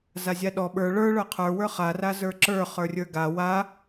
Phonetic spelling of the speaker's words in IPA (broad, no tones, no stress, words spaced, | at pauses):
zazʲaɗɔ ɓə˞ ɭə˞ ɭə˞qʰə˞wə˞ χarazə˞ ǁə˞ χə˞rʲə˞ɡa wa